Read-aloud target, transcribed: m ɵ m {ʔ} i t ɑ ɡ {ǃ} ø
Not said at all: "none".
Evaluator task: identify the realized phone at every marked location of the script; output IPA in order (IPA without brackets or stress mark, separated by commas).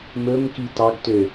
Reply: k, t